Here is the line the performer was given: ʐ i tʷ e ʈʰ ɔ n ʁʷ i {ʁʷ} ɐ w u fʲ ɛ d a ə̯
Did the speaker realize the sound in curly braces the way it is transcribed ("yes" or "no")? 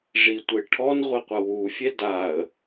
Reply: no